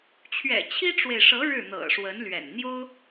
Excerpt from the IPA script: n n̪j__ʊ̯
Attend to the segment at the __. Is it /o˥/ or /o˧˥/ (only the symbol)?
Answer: o˥